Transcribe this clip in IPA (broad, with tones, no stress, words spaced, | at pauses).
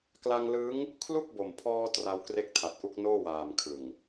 kla˧ŋlɯː˦˥ŋ | kʰlu˥˩k̚bo˨˩mpʰɔː˧ tra˧w kre˦˥k̚tʰa˨˩t̚ʔu˦˥k̚ noː˥˩waː˨˩mkʰɯ˨˩ŋ